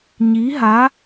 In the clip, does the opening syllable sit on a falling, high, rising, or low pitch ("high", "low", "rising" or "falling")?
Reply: rising